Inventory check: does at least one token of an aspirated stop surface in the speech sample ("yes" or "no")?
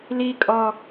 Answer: no